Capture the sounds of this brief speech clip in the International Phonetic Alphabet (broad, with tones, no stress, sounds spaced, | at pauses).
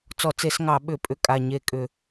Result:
t͡s ɔ˧˩˧ t͡s e˧˩˧ s ŋ ɑ˧˩˧ ɓ ʏ˧˩˧ pʼ ʏ˧˩ kʼ a˧˩ ɲ e˧˩ kʼ ʏ˧˩˧